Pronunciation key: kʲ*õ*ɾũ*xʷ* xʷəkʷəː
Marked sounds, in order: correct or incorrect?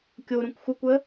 incorrect, incorrect

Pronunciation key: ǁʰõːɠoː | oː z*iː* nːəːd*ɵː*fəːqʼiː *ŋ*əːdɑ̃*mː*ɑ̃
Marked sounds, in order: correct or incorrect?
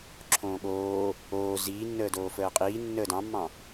correct, incorrect, incorrect, correct

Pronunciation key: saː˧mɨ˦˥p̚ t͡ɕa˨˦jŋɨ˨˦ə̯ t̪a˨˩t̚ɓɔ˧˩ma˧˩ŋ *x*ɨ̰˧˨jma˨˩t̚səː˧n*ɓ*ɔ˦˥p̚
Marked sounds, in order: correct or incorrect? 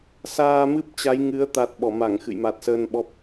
correct, correct

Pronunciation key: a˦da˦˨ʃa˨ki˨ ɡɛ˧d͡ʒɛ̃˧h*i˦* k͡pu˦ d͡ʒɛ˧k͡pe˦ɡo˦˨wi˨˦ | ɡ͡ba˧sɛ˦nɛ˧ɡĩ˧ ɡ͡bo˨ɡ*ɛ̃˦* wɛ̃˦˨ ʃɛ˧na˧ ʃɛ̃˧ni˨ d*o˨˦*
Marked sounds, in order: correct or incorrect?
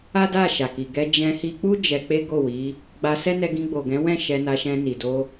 incorrect, incorrect, incorrect

